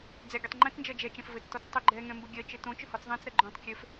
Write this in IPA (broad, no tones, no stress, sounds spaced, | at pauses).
d͡z ɛ ɡʲ ɘ tˤ ŋ͡ǃ ɛ̃ t͡s n d͡ʒ ɜ d͡ʒ ɛ t͡ʃ ɛ̃ f v ɘ t͡s t ɔ t͡s tˤ ø ɡ͡ǃ ɛ ŋ ɛ̃ m b ɘ ɡʲ ɜ t͡ʃ ɘ t õ t͡ʃ ʏ h ɔ t͡s ðˤ ɛ̃ t͡s ɾ ɜ ɡ͡ǃ õ tˤ kʲ ø f